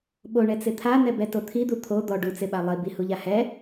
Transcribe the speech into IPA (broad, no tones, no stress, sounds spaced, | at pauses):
ɓ o ɳ ɛ t͡s ɪ t̪ʰ a n̪ ɛ b ɛ t o t̪ʰ i d̪ u t̪ʰ o d̪ ɔ ɖ u t͡s ɪ ɓ a lˠ i b i h u ʎ a h ɛ